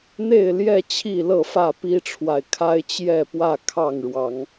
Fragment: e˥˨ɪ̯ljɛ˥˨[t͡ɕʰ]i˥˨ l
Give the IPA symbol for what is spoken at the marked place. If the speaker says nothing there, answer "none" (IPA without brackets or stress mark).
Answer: t͡ɕʰ